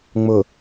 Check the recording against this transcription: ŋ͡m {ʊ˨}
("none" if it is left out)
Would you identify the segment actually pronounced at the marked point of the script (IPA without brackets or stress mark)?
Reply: ʊ˨